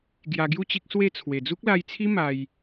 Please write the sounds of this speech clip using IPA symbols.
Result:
ɡ j a˧ ɡ j u˥˧ t͡ɕ i˦ k̚ s w e˥˧ t͡sʰ w e˨˩ d͡z u˦ k̚ l a˧ j t͡sʰ i˦ m a˧ j

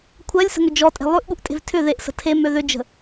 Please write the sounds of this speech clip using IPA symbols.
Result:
kʷʰ ɜ lʲ s ə̤ ŋ ʏ d͡ʒ ɔ tʼ e̤ lˠ ʉ ʔ ɠ u ʔ tʼ e̤ v tʰ ʏ ð e ʔ s ə̤ tʰ e m ø ð ʏ d͡ʒ ə̤

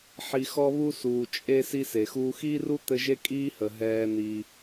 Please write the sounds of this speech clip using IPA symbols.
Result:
ħ i˨ x ɔ˦ β u˦ s uː˩ t͡ʃʼ e˦ s i˦ s e˩ x uː˦ x iː˥ r u˥ t̪ ɘ˦ ʒ e˥ kʼ iː˦ h ə˩ ɦ ɛː˨ n̪ i˩

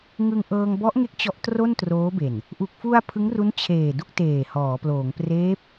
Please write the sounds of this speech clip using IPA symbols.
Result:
ŋ ɯ˧ ŋ ʔ ɤː˧ ŋ b ɔ˦˥ ʔ ŋ e˦˥ k̚ t͡ɕ ɔ˦˥ ʔ t r o˥˩ n t r oː˦˥ b e˨˩ n | ʔ u˨˩ k̚ f u˧ a̯ pʰ ɯ˦˥ ŋ r u˦˥ n t͡ɕʰ eː˨˩ d u˥˩ k̚ t eː˨˩ h ɔː˩˦ p l oː˩˦ ŋ p r eː˦˥ p̚

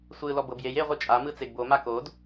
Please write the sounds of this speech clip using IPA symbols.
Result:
sʷ ɯ l ɔ b ɤ b j e j e ʁʷ ɯ t͡ʃʼ a m ɯ t͡s e ɡ b o m a k o d

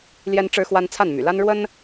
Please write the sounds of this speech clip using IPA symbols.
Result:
l j ɛ˥ n ʈ͡ʂ ɻ̩˥ x w a˥ n t͡sʰ a˥˩ n m y̰˨˩ l a˥ n ɻ w ə˥ n

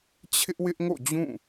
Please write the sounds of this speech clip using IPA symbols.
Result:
t͡ɕʰ ɪ˦ ʔ w ɪ˦ ʔ ŋ o̰˦˨ d͡ʑ ũ˦˨

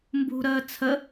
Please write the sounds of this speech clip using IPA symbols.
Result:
m b ṳ ɾ əː t͡sʰ ə

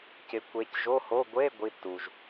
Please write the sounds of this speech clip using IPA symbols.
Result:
c ɪ˨˦ kʷ e˨˦ c ʒ o˧˥˧ h o˧˥˧ ɡʷ e˧˥˧ ɡʷ i˧˥˧ tː u˩ ʒ

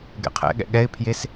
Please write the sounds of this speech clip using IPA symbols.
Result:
ɡ ɛ̰ qʰ ɛ̰ ɠ ɛ̰ ɠ ɛ ɪ̯ pʰ j e s

